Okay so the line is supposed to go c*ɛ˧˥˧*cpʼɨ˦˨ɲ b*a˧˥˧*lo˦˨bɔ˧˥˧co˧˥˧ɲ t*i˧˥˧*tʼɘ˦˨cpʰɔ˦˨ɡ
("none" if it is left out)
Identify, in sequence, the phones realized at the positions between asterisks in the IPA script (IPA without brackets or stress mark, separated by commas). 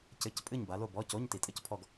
ɘ˧˥˧, a˨˦, i˨˩˦